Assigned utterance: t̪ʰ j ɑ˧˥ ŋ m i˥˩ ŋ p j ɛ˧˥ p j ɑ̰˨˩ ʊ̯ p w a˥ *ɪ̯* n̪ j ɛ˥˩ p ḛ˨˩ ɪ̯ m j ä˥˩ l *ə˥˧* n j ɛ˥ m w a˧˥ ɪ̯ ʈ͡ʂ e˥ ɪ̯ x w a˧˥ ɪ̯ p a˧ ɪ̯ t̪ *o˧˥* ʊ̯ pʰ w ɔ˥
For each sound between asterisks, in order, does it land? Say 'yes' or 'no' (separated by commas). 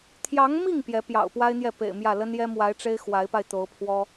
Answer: yes, no, yes